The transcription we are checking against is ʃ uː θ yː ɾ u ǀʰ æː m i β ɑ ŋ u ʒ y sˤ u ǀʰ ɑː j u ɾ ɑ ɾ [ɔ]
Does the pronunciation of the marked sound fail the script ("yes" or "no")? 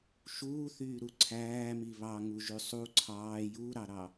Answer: yes